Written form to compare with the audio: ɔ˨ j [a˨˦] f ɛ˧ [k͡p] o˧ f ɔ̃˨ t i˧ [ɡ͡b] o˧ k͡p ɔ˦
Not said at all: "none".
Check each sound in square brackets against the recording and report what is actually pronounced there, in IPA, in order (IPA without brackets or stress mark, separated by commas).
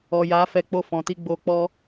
a˨˦, k͡p, ɡ͡b